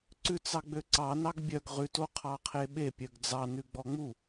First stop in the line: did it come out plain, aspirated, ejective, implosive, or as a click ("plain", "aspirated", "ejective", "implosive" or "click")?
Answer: click